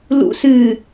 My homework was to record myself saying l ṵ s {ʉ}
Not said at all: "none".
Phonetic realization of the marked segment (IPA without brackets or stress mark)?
ɨ